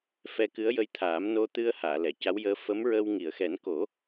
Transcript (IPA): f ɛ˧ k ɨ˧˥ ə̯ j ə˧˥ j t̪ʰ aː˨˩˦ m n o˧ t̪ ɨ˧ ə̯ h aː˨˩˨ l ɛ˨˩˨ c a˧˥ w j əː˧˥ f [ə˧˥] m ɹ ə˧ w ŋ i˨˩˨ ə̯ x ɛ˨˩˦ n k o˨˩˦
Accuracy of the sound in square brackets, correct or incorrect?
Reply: correct